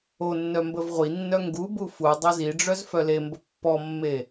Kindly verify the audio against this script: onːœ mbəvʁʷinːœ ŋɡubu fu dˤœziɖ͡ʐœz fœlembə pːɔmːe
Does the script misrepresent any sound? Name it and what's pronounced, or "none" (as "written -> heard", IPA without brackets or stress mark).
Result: none